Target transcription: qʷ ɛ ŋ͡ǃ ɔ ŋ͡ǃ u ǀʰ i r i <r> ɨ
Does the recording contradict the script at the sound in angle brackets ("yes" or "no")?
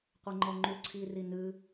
yes